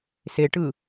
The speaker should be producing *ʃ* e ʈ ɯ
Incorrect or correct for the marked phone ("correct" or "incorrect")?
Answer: incorrect